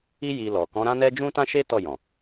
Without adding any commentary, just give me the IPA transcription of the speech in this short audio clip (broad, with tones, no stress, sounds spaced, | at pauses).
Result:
i˦ j i˧ l ɔ˨ k ɔ̃˨˦ ɾ ã˦ n ɛ˦ d͡ʒ ũ˦ t ã˦ ʃ e˦ t ɔ˦˨ j ɔ̃˨